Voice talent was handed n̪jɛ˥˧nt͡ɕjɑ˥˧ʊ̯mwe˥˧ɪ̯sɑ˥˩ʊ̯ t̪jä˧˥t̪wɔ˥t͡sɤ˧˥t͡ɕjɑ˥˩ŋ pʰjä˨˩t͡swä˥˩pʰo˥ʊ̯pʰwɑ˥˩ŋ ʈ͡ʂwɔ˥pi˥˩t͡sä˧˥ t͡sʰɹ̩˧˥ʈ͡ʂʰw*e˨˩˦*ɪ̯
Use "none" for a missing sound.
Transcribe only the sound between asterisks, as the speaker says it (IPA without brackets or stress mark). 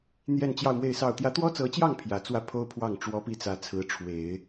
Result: e˨˩˦